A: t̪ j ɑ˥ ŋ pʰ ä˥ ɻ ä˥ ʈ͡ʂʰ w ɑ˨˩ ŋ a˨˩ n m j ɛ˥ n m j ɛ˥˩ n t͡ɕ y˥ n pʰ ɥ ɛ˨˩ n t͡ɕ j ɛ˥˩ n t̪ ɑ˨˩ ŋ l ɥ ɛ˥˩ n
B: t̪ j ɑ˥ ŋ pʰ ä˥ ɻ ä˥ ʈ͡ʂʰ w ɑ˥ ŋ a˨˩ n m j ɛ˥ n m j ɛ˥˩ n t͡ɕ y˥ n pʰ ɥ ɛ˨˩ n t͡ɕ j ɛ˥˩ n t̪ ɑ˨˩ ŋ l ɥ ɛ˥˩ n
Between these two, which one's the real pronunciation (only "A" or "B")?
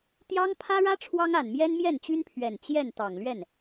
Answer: B